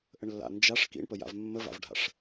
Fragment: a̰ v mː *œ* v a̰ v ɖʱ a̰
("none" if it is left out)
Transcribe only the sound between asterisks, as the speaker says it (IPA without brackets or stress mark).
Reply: ə